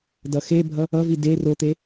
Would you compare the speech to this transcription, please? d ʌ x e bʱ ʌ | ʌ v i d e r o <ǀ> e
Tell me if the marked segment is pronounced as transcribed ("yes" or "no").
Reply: no